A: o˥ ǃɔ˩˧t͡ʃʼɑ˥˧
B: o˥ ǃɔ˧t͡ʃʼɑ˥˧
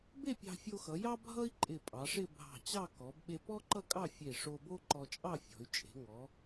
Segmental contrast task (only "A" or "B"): B